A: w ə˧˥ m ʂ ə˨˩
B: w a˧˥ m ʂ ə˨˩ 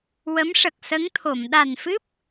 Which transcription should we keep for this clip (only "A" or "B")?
A